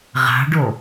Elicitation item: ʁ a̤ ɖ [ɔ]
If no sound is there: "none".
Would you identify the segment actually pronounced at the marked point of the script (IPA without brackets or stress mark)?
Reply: o